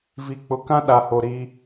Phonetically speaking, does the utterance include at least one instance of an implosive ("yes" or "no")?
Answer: yes